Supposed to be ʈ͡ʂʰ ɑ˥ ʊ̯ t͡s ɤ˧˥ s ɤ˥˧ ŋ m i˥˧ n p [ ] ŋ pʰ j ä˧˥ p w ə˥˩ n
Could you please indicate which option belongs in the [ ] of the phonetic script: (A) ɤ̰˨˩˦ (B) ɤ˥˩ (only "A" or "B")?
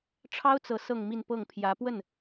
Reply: B